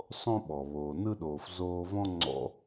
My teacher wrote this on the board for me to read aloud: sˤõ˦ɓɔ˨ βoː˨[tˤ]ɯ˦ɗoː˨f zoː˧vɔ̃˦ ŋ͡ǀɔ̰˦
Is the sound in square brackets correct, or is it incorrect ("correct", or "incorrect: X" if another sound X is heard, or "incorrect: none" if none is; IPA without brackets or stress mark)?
incorrect: n